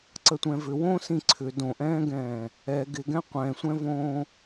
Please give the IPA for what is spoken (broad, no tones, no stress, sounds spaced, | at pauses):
ǀ ə tʷ ɛ̃ v ʏ w õː s ĩ ǀʰ ʏ d õ ʔ ɛ̃ː ɡ ɛ̃ː | ɛ ɡ ɪ ɡ ɛ̃ qʷ ɛ̃ sʷ ɛ̃ v õː